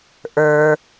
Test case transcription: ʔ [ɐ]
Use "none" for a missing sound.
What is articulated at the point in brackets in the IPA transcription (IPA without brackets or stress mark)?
ə˞